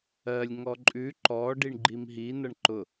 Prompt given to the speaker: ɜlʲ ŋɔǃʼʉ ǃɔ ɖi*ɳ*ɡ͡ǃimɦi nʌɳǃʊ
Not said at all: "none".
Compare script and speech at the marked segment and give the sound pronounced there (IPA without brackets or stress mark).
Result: ɳ